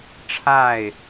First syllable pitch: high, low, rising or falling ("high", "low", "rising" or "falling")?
falling